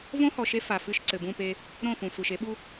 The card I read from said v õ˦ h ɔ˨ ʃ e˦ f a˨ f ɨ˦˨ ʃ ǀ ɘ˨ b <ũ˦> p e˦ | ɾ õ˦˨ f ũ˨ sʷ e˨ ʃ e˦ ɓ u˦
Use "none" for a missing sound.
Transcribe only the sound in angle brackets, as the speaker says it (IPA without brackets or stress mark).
ũ˦˨